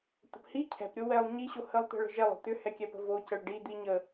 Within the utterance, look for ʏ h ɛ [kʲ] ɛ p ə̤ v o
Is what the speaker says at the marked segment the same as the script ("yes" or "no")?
yes